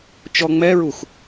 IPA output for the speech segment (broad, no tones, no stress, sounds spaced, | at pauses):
t͡ʃ ɔ ŋ͡m ɛ ɹ u x